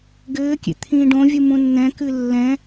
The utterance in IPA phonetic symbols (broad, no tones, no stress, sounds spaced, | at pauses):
ɡ ɘː kʲ ḛ t̪ʰ ĩː ɖ õ vʲ u m ũ nː ɛ̃ k ɨ lː ɛ̃